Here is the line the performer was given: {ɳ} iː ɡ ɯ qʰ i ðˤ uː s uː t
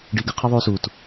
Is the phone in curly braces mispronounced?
yes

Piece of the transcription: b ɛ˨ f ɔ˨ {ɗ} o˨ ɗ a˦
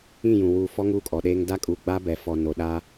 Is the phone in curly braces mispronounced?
yes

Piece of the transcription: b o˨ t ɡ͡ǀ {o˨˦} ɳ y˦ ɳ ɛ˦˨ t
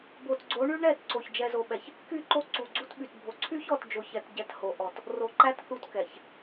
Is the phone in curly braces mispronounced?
no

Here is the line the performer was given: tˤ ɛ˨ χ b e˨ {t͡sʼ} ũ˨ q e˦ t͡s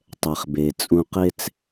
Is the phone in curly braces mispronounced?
no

